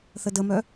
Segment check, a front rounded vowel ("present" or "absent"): present